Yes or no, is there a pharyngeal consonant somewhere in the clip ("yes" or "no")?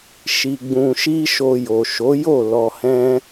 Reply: no